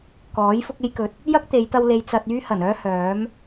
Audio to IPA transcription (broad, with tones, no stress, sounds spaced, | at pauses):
k ɔː˨˥ j f ʊ˥ k̚ e˥ j k ɵ˧ t̚ | j ɐ˥ k̚ t̪ e˨˧ j t̪ ɐ˧ w l e˨ j t͡s ɐ˨ t̚ yː˥ h ɐ˨˩ n œː˥ h œː˨˥ m